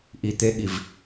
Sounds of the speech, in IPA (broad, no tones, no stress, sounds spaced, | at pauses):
ʔ i t̪ e ɠ i v